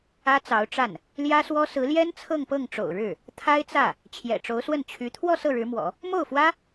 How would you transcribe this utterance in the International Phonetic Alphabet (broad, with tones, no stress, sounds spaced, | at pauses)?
ä˥ t͡s ɑ˧˥ ʊ̯ ʈ͡ʂ a˥˩ n | l j ä˥ s w ɔ˥ s ɹ̩˧˥ l j ɛ˥ n t͡sʰ ɤ˥˧ ŋ p ɤ˥˩ ŋ ʈ͡ʂ o̰˨˩ ʊ̯ ɻ ɻ̩˥˩ | t̪ʰ a˥ ɪ̯ t͡s ä˥˩ | t͡ɕʰ j ɛ̰˨˩ ʈ͡ʂ o˧˥ ʊ̯ s w ə˥˩ n t͡ɕʰ y˧˥ t̪ʰ w ɔ˥˧ s ɤ˥˩ ɻ ɻ̩˧˥ m w ɔ̰˨˩˦ | m o˥˩ ʊ̯ f w ä˥